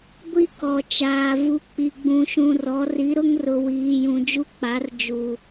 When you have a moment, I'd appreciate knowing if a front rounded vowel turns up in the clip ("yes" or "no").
no